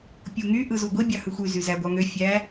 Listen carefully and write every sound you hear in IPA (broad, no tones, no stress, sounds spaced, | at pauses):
pʲ u ŋ y ʔ ɯ z u ɡʷ i bʲ ɑ h ɯ xʷ y z y z æ ɡʷ ɑ ŋ ø fʲ æ